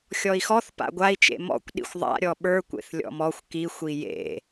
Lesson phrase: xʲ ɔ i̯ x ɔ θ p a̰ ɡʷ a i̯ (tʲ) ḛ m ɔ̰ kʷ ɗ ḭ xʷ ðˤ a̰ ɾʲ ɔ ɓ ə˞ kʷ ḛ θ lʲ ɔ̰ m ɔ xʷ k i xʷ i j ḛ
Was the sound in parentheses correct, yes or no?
no